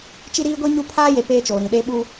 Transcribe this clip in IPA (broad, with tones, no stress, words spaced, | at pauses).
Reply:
t͡ʃi˦ɾiː˦ɡʷi˦ ɲu˦ pʰaː˦je˨ peː˦t͡ʃoː˨ɾĩ˨ ɗeː˦ɓu˦